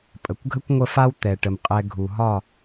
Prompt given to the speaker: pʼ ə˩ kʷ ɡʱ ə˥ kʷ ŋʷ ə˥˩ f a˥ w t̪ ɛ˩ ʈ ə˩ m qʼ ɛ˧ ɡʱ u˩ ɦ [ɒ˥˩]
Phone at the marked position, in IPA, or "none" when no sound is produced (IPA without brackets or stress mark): ɒ˥˩